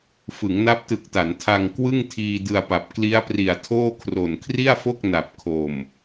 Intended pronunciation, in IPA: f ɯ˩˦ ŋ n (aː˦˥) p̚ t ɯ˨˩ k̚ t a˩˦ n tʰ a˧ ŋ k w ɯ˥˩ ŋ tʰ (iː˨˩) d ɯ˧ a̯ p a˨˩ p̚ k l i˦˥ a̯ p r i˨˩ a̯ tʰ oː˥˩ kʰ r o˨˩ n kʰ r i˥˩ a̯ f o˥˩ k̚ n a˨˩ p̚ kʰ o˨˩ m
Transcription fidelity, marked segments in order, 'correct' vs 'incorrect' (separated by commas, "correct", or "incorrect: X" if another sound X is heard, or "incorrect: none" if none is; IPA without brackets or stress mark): incorrect: a˦˥, incorrect: iː˧